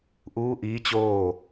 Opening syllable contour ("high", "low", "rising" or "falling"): rising